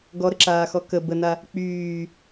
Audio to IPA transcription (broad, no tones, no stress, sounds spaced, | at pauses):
ɡ ɔ ɾ ə ǁ aː x ɔ k ə b ə n a | k͡p yː